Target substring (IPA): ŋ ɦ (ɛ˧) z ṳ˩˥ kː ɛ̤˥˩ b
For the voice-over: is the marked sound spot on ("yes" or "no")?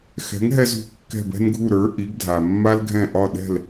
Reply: yes